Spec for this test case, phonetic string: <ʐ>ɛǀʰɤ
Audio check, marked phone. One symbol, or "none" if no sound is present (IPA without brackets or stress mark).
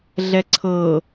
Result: ɮ